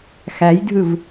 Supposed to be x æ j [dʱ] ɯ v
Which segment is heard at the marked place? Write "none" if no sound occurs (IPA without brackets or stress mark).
dʱ